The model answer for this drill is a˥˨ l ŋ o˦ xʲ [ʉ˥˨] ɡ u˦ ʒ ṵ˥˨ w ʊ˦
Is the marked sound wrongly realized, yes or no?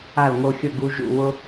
yes